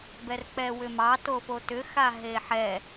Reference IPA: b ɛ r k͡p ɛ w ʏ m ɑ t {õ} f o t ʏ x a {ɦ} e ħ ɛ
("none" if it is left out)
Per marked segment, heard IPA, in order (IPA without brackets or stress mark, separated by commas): o, ɦ